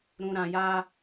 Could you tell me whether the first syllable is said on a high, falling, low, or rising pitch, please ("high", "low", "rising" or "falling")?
low